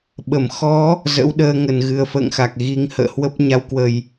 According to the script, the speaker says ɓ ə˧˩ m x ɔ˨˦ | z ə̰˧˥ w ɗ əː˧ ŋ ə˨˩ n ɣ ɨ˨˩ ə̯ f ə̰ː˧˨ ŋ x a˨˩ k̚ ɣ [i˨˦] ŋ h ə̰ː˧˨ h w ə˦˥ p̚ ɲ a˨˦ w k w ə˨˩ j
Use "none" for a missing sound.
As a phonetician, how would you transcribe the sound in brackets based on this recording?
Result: i˨˦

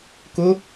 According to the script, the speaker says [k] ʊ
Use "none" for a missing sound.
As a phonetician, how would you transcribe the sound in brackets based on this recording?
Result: k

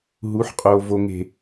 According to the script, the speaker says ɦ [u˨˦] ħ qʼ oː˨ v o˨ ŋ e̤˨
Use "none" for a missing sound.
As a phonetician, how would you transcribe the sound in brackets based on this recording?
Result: u˨˦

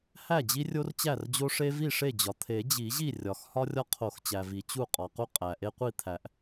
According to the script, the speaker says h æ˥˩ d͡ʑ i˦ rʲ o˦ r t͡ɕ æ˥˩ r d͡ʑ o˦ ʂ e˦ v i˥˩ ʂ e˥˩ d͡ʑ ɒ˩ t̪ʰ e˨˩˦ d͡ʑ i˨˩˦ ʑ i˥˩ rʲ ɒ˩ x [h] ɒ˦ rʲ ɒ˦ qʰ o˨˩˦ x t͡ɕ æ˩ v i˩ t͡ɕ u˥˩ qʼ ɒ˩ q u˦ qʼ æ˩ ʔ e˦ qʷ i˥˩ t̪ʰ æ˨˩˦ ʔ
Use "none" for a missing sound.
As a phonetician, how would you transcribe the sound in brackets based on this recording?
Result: h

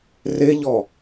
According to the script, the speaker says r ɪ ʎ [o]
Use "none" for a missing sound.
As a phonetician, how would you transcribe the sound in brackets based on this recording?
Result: ɔ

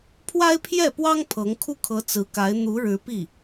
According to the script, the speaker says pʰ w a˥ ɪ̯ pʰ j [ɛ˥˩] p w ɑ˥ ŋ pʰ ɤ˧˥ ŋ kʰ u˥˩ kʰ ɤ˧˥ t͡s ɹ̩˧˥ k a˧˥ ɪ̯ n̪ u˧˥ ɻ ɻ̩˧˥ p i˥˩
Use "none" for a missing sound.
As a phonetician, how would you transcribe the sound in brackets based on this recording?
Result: ɛ˥˩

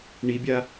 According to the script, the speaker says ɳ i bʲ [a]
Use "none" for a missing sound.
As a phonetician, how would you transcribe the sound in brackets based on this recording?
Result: a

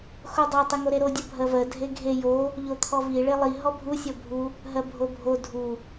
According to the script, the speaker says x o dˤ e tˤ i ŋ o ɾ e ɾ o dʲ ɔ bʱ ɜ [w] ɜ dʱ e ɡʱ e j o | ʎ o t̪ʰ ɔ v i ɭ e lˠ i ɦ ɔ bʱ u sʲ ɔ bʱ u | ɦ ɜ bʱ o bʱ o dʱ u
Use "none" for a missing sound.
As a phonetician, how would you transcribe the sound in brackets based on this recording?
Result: v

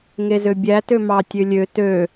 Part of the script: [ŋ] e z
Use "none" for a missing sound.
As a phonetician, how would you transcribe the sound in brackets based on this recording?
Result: ŋ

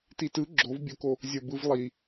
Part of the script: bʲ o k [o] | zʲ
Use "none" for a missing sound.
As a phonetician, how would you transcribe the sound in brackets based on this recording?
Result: o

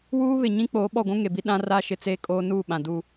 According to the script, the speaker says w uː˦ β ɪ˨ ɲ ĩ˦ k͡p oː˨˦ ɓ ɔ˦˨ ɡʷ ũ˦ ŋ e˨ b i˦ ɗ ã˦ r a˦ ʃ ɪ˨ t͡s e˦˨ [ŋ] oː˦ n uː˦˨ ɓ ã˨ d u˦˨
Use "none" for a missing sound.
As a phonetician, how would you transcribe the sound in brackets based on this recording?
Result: kʼ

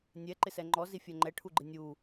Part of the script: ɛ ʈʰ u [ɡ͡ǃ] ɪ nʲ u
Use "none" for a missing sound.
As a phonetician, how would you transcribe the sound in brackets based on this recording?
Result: ɡ͡ǃ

